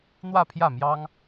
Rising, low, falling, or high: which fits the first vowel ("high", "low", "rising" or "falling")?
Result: falling